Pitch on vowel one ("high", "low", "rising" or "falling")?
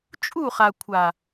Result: falling